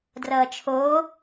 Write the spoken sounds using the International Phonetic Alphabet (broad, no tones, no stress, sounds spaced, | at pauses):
d r ʌː t͡ʃʰ oː